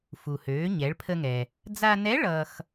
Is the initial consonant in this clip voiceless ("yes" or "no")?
yes